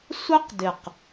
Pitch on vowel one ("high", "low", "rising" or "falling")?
high